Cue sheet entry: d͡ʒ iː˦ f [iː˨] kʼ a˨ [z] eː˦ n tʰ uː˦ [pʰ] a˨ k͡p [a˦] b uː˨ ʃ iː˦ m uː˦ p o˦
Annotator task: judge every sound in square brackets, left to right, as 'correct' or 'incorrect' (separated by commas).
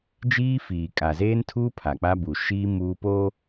correct, correct, correct, correct